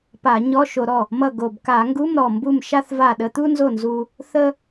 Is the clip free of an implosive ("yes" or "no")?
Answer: no